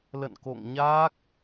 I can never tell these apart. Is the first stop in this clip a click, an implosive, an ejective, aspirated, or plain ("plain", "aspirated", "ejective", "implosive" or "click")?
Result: plain